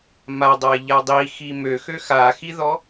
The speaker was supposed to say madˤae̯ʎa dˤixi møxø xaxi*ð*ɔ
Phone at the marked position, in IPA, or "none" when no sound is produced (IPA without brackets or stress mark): ð